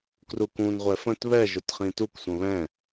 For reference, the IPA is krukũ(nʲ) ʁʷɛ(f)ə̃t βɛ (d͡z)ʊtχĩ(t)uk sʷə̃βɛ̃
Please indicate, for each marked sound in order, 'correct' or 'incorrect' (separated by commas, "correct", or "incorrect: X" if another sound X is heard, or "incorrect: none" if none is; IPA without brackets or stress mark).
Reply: incorrect: n, correct, incorrect: ʒ, correct